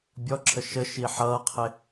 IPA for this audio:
bʲ ɔ ǁʰ ə ʃ ə ʃ i ħ ʌː qʰ ɪ

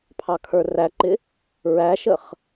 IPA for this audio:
pʰ ɑ kʰ ə˞ r æ ǃ ɪ | ɹ æ ʃ ə χ

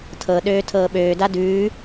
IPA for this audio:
tʰ ɤ ɗ øː tʰ ɤː ɓ øː d a d ʉː

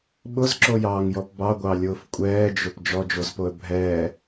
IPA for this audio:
ɓ ʊ z ǁ o j ɑː ŋ j ɔ p b ɑ ɡʷ ɑ lʲ ʊː f kʷʼ ɛː d͡ʒ ʊ p d͡ʒ ɔ d͡ʒ o z p o ə̯ bʱ ɛː

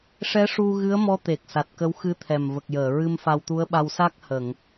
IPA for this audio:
ʂ ɛ˧˥ ʂ u˧ ɣ ɨ˧˥ ə̯ m ɔ˧˥ t̪ e˨˩ k̚ s a˨˩ t̚ k ə˧˥ w x ɨ˧˥ t̪ʰ ɛ˨˩ m v ə˨˩ k̚ j əː˨˩˨ ɹ ɨ˧ m f a˧ w t̪ u˧˥ ə̯ ɓ a˧ w s a˦˥ k̚ h ə˨˩˨ ŋ

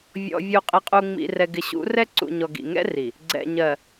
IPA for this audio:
vʲ ɔ̰˨ vʲ u˨ qʼ ɪ˨ qʼ u˨ ŋ͡m ḭ˨ r ɛ˨ ɡ ɪ˨ ɕ ṵ˨˦ r ɛ˦ ǀ ṵ˨ ɲ ɔ˨ ɡ ḭ˨ ŋ ɛ̰˦ r i˨ | ɡ͡ǀ ɛ̰˨ ɲ ɜ˨

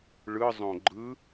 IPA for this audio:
ɭ ɯ zˤ õ ɡ͡ǃ ɯ

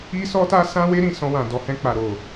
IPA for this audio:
i˦ s ɔ˦ t a˦ s ã˦ w e˦ ɾ ĩ˦˨ s ɔ̃˧ w ã˨ d ɔ˨ h ɛ̃˧ k͡p a˨ ɾ o˨

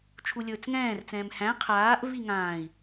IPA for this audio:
t͡ʃʰ u lʲ ɵː t͡s ŋ ɛ̃ː r t͡s ɛ̃ː m h æ̃ qʰ aː ʔ v i ŋ ãː i̯

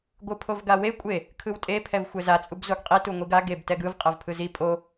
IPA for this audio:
ɡʷ ɯ pʰ o v ɡ a w e kʷʼ e | kʰ ɯ w tʼ e pʰ ɛ v xʷ ɛ z a t͡sʼ u b z o ɡ qʼ i t u ŋʷ i ɡ a ɡ e b t ɛ ɡ ɯ v qʼ ɛ v pʰ ɯ z i pʼ o

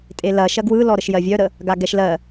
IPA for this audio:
tʼ e l ɐ ʃ ɐ ɡ w ɯ l ɔ ɾ ə ʃ j ɜ vʲ œ ɾ ə | ɡ a ɡ ɛ ʃ l ɜ

